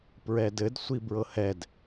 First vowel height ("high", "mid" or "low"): mid